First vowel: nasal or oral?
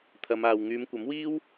oral